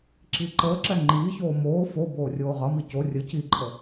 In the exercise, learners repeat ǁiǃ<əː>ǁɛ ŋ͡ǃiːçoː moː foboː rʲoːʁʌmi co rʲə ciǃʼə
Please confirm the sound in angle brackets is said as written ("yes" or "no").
yes